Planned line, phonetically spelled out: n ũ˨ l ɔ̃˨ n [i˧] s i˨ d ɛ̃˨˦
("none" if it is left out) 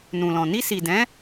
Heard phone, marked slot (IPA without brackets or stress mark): i˧